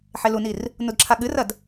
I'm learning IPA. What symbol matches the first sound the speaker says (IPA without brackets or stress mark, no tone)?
ħ